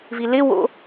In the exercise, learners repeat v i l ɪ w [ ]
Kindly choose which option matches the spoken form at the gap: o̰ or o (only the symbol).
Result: o̰